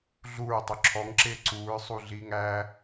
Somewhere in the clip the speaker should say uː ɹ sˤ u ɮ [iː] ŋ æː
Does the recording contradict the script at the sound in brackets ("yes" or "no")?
no